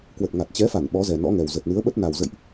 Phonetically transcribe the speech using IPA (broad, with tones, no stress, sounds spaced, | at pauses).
k w ə˨˩ t̚ ŋ a˨˩ t̚ t͡ɕ ɛ˨˦ f a˧˩ n ɓ ɔ˨˦ z ɛ˨˩ n ɔ̰˧˥ ŋ ɛ˨˩ w z ə˨˩ t̚ n ɨ˨˦ ə̯ ɓ ə˦˥ t̚ n a˨˩ w z ə̰˧˨ j ʔ